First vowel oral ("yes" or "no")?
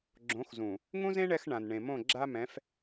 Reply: no